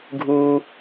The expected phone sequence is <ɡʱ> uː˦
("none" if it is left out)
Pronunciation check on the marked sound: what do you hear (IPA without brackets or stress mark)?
ɡʱ